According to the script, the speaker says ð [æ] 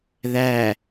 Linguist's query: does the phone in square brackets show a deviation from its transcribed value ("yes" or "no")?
no